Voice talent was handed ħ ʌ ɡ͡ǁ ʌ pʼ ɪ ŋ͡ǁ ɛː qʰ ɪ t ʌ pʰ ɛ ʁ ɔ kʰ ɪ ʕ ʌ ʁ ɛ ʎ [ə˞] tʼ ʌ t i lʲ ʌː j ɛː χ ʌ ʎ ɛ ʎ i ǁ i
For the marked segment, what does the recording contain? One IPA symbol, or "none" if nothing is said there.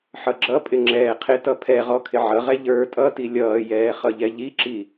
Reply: ə˞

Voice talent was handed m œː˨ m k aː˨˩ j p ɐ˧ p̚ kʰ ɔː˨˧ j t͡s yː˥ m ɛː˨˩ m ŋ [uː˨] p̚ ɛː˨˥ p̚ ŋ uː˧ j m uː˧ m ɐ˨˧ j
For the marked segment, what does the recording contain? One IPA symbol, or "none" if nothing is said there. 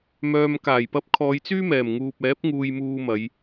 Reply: uː˨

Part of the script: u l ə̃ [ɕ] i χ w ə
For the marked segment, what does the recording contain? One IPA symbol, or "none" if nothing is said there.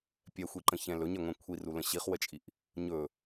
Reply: ɕ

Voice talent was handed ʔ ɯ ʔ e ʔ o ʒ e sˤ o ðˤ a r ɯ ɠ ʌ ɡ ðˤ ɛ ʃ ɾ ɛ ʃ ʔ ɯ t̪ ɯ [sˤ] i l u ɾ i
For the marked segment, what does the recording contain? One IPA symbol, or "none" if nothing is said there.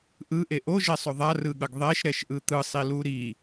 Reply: sˤ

